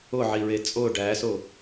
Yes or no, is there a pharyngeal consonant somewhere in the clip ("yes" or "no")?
yes